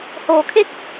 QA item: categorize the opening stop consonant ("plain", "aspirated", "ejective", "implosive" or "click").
aspirated